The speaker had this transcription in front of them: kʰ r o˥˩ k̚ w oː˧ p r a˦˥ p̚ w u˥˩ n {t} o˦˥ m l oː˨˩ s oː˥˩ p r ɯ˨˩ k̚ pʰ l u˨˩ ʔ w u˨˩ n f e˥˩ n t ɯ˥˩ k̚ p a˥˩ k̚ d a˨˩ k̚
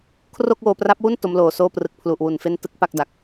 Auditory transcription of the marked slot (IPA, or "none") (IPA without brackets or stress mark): t